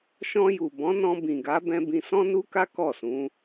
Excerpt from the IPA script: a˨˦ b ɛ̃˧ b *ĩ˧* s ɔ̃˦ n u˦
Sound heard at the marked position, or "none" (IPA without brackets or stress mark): ĩ˧